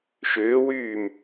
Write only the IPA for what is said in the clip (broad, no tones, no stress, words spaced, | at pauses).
ʃʏːwyːm